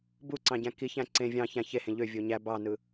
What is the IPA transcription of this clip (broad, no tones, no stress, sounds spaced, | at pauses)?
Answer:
b u ǀ ɑ̃ ɟ æ̃ k i ç æ̃ ǀ ẽ vʲ ɑ̃ ç æ̃ ç e h ẽ ʎ ø vʲ o ɲ æ b ɑ n ɯ